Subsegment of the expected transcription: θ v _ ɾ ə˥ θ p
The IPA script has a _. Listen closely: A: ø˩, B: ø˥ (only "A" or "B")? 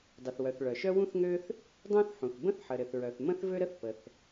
B